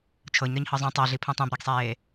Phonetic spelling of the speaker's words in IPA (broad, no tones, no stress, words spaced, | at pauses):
t͡ʃʰɤɲɾɤɲhɤ zˤũ tˤɤɮi pʰũtˤẽbɾiɡsˤeː